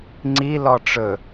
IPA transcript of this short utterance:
ŋ͡ǀ i l ɔ ʈ͡ʂ ɵ

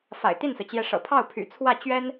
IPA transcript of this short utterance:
f a̰˨˩ ɪ̯ t̪ i˥˩ n s ɹ̩˩ t͡ɕ j ɛ˧˥ ʂ ɤ̰˨˩ pʰ ɑ˥˩ ʊ̯ pʰ y̰˨˩ t͡sʰ w ä˥˩ t͡ɕ ɥ ɛ˥ n

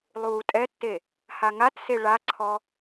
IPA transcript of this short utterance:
lˠ uː tʼ ɛ tː e | h a ŋ a t s e ɭ a ǀʰ ɔ

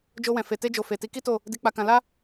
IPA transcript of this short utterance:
d͡ʒ o˧ w ɛ̃˨ f e˨ t e˧ d͡ʒ o˨ f e˨ t i˨˦ k i˦ t o˦˨ | d i˧ k͡p a˧ k ã˧ l a˦

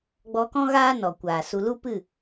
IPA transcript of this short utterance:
ɡ͡b ɔ˧ k ɔ̃˦ ɣ aː˦ n ɔ˨ kʷ aː˨ s u˧ l u˦ p ɨ˦˨

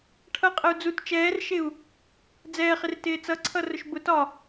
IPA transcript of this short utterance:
ʈʰ ʌ qʼ ə u̯ d͡z u t t͡ʃ ɛː r ʃ ɪ u̯ | d͡z ɛː χ ɪ r t ɪː t͡s ʌ ǀʰ ʌ r ʊ ʃ b ʊ t ɒ

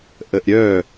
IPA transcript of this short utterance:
ʔ ə ʔ ɾʲ œ

